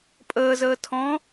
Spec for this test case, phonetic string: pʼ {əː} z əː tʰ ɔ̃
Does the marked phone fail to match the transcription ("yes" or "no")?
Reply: no